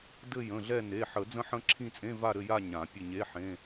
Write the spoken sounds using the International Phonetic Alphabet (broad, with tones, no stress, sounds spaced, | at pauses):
d ɘ˦˨ j ə̃˩˧˩ ɮ ɛ˦˨ n e˩˧˩ ħ ə˨˩˦ d͡z ə̃˦˨ ħ ə̃˦˨ ǁʰ ĩ˦˨ t͡sʼ ẽ˧˥˧ v a˦˨ ɾ ɘ˦˨ j a˦˨ ɲ ã˨˩˦ pʲ ɘ˦˨ ɲ e˧˥˧ ħ ẽ˧˥˧